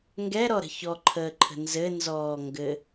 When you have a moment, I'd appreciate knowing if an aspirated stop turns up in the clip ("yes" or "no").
yes